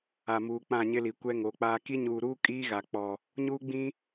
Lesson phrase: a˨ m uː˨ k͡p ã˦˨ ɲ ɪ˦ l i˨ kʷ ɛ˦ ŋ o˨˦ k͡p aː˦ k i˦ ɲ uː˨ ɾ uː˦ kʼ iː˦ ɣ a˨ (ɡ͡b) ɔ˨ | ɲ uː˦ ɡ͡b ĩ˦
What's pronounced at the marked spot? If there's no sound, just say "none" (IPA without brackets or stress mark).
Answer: k͡p